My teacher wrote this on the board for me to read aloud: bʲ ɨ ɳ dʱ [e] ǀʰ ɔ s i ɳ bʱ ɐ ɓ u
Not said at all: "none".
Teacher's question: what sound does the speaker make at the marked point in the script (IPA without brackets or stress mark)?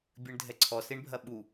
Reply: ɛ